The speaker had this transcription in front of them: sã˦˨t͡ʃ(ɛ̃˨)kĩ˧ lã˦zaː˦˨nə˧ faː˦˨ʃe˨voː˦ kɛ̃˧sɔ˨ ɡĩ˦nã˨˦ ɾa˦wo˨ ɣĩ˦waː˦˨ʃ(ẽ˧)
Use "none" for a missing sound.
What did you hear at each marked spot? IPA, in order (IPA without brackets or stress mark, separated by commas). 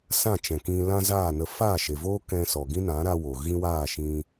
ɛ̃˨, ĩ˧